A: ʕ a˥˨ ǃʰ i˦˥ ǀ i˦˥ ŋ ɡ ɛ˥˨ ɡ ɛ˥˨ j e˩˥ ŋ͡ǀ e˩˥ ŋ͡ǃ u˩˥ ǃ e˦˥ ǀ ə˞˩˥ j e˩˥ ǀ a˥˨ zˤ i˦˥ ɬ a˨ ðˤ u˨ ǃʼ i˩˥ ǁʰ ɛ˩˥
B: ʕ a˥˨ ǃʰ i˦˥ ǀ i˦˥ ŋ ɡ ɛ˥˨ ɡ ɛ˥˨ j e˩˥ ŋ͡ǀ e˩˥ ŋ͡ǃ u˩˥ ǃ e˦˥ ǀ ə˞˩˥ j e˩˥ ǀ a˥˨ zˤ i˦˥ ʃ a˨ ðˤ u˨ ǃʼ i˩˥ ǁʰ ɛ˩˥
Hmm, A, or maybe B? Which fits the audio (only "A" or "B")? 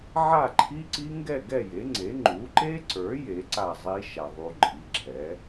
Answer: B